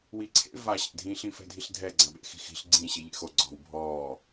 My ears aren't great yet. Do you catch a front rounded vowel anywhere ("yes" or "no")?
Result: no